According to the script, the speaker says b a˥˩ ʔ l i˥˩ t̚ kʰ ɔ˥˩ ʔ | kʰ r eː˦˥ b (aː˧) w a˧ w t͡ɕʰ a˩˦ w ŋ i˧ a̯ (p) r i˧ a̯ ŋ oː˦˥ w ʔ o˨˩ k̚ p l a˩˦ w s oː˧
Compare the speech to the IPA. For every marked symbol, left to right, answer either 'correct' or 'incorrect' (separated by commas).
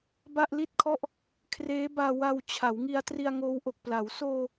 correct, incorrect